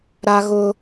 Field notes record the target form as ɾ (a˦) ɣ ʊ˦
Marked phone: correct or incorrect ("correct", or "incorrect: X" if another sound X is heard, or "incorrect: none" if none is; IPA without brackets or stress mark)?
correct